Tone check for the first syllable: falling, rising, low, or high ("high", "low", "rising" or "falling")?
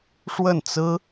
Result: falling